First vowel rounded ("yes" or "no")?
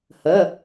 no